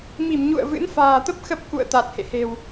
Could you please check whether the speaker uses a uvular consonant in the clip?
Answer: no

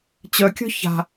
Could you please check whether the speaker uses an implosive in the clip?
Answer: no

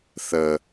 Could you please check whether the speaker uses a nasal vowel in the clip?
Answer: no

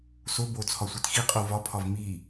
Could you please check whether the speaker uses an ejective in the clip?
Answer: yes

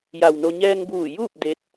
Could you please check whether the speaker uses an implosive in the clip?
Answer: no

